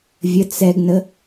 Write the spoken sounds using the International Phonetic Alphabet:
vʲət͡s ɛɡnə

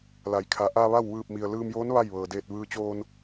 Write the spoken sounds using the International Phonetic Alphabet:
la˩˧j kʰa˩˧ ʔa˧ ʋa˥˨w ʋɯː˧˩p̚mi˩ə̯ lɯː˧mjoː˧˥n ʋa˥˨jʋɤː˩ deː˧˩t̚ ʋɯː˧t͡ɕoː˧n

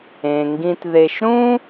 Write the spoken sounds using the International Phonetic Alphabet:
ẽ˩ŋɡĩ˨tðe˨ʃɾũ˥

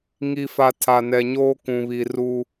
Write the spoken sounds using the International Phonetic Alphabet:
ŋi˨fa˨ tʰa˨nɛ˨ɲoː˦ kũ˨βi˨ru˦

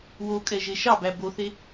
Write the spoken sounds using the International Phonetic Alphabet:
wokʼɛʒe ʃɑbæ boθe

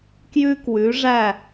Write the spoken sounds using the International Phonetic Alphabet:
kjʉ˦kwʉ˨˦ʐæ˦˨

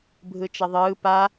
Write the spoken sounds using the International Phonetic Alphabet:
bʱɯt͡ʃʌðˤɯː pa

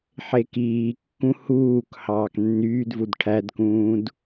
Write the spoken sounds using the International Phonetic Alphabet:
ħekiːkːũ huːk hɑːknːyːdvud ʈʰædkũːd

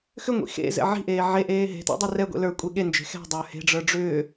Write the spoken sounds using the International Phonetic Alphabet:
xʏŋʷḭ xḛzɛ̰ ʕi̤ʔeː ʕeʔeː ɦe̤tḛdˤi rɛɡʷḛ lə˞kʷʼe ɠend͡ʒe̤ xɛ̤dˤə˞ he̤ɖ͡ʐə˞ ɖ͡ʐʏː

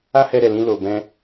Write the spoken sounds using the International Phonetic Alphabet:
a˦hɛ˧ɾɛ˨lĩ˧ lo˨bɛ̃˧

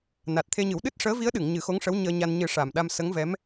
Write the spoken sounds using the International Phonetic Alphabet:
na˨˩t̚t̪ʰe˧ɲɨ˨˩˦w ɗɨ˦˥t̚ʂəː˧˥ vi˧˥ə̯ɗɨ˨˩˨ŋ ɲɨ˨˩˦xo˧˥ŋʂə˧˥w ɲəː˧ɲa˧n ɲɨ˨˩˦ ʂa˨˩mɗa˧msə˧˥ŋ vɛ˧˥m

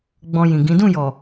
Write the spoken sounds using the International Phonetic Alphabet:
ɡ͡bɔ̃˧jĩ˨ɡĩ˨˦ dũ˦˨jɔ˨

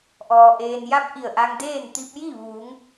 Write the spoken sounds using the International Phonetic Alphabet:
ʔɔː˩ ʔeː˩nja˧p̚ ʔi˧˩ə̯ʔa˧ŋdeː˥˨n t̪i˧p̚ji˥˨ ʋuː˩˧ŋ

